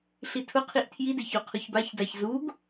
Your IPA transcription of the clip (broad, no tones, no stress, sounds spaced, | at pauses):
ɬ i tʰ ʊ qʰ i ʔ tʰ j i d e ç o qʰ ʊ ç b a ç d a ç z u ɡ